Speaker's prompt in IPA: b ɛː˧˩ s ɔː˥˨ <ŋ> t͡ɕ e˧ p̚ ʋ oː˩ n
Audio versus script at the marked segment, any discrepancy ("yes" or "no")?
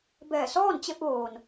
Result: yes